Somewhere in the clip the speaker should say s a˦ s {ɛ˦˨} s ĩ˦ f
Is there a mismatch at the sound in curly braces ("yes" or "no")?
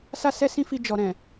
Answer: yes